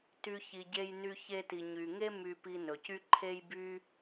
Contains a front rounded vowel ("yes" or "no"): yes